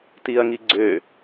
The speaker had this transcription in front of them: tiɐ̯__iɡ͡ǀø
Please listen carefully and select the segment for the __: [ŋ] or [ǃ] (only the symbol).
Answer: ŋ